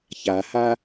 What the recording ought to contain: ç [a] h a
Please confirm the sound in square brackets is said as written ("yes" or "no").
yes